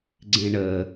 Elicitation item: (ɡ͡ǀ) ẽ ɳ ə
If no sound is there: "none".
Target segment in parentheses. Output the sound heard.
ɡ͡ǀ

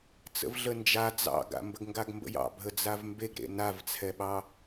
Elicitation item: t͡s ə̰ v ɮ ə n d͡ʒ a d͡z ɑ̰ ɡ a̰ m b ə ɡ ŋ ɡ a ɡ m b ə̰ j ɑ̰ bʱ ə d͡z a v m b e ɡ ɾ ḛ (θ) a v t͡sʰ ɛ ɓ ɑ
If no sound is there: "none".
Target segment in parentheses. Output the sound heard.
n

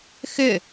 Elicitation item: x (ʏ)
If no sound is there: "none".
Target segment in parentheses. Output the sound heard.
ʏ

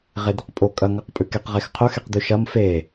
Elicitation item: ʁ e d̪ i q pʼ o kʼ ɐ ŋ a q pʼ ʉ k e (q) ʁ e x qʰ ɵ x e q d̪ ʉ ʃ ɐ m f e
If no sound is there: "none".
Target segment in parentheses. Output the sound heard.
q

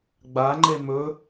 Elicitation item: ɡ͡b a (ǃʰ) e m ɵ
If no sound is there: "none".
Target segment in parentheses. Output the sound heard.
ŋ͡ǃ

